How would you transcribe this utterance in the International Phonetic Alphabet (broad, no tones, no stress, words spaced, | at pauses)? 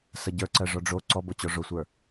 səɟə˞ǀɜ ʐɔɖ͡ʐo ǀɔbot͡ɕɔ ʐosʷə˞